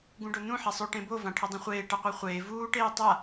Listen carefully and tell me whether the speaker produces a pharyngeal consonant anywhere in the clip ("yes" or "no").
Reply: yes